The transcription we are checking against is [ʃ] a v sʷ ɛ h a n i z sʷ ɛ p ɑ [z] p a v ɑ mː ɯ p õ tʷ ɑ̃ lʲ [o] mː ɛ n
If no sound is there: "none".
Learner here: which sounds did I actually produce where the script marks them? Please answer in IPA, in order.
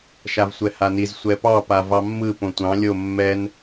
ʃ, none, o

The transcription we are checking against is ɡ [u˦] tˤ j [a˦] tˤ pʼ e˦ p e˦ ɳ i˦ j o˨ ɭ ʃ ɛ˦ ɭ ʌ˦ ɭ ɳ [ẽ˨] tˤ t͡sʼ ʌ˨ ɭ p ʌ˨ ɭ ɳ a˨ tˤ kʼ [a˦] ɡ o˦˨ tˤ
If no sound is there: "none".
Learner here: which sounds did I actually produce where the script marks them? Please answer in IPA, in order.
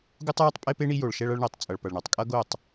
u˦, a˦, e˨, ʌ˦

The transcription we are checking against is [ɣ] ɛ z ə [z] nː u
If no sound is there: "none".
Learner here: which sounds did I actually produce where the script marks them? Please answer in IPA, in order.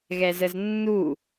ɣ, z

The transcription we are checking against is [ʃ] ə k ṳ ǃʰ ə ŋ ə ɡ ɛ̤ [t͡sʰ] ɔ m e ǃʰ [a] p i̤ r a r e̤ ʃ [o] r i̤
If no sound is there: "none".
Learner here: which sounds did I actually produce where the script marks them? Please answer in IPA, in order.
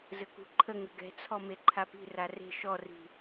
z, t͡sʰ, a, ɔ

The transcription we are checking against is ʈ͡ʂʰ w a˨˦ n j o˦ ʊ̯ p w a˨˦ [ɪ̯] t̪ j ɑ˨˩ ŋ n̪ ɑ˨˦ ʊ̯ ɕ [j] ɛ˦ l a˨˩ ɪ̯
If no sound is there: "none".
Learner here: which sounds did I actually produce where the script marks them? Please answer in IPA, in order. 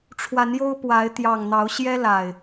ɪ̯, j

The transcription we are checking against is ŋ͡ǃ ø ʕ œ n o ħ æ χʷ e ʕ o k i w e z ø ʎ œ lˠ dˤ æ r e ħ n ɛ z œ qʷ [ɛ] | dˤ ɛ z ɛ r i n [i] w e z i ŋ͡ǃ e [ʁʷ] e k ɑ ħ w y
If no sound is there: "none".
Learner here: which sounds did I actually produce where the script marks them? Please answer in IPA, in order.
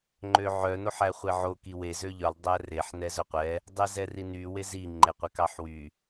ɛ, y, qʷ

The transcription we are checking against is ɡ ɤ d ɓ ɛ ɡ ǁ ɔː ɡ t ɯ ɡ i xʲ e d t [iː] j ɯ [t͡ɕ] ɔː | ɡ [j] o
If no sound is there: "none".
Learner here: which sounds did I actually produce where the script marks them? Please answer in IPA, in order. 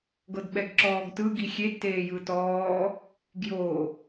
eː, t, j

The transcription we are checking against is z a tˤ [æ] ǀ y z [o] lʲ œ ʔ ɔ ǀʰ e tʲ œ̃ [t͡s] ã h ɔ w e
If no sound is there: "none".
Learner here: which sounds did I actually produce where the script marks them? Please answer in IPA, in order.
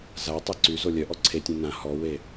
æ, o, n

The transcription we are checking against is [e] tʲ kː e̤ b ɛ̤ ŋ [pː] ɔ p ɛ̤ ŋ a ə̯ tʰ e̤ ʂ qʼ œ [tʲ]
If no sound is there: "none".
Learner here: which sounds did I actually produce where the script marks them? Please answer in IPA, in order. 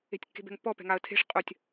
e̤, pː, tʲ

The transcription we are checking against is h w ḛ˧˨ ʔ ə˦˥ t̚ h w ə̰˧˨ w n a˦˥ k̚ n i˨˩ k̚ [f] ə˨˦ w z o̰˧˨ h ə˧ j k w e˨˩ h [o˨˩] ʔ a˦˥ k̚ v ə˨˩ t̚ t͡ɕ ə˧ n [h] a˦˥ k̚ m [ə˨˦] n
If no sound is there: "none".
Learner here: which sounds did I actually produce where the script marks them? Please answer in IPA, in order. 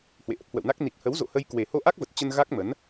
h, o˧, ɣ, ə˨˦

